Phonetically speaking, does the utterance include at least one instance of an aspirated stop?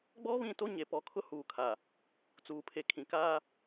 yes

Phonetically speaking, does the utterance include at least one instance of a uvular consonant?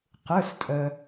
yes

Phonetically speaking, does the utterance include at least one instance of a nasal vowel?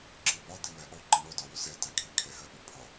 no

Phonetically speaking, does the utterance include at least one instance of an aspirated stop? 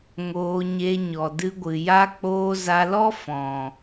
no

